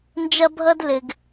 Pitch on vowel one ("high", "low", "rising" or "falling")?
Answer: high